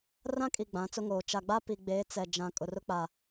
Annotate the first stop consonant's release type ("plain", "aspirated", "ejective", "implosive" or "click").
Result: ejective